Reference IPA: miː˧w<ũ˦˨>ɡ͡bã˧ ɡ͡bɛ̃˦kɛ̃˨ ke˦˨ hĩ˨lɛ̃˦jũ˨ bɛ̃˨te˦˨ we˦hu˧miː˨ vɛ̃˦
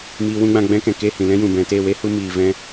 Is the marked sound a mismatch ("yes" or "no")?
yes